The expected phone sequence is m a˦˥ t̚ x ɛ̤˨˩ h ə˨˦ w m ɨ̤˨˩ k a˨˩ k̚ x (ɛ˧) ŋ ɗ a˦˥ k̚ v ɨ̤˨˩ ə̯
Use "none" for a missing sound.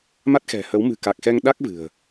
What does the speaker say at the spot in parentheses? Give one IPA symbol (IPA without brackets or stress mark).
ɛ˧